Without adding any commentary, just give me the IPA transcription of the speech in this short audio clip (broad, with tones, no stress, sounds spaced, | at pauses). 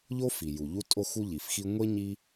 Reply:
ʎ o˥ f i˩ j u˩ ʎ u˥ tʼ o˥ x u˥ ʎ i˩ f x i˥ ŋʷ e˥ ɲ i˥